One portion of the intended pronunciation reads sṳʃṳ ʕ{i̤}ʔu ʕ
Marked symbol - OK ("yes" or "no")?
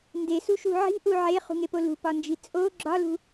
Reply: yes